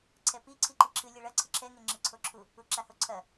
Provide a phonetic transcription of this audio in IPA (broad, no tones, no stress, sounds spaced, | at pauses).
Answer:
ǀʰ ɛ p i ǀʰ i ǃ i ǁʰ ɨ lʲ ɛ ɭ ɐ ǀʰ ɨ ǁʰ ɛ ŋ e ŋ͡ǁ ɨ ǀʰ o ǁʰ u | u ǁ a h o ǀʰ ɐ